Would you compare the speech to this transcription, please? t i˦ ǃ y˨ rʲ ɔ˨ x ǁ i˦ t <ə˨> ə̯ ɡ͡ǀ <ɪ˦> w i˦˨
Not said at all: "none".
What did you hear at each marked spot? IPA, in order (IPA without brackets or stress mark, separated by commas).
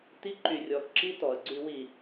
ɔ˨, y˦